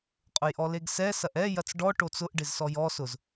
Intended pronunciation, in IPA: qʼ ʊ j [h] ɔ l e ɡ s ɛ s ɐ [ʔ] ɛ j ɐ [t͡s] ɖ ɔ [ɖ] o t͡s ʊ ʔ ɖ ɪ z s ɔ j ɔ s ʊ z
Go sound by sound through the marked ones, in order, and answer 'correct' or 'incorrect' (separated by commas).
incorrect, correct, correct, incorrect